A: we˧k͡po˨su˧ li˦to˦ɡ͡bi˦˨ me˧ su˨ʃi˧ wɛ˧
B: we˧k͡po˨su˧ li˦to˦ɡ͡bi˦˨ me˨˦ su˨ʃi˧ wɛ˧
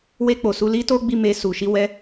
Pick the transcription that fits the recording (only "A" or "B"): A